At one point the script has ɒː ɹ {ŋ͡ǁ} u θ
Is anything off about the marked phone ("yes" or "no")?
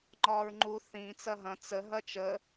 yes